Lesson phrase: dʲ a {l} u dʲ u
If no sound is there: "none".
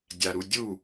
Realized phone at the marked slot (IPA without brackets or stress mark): ɾ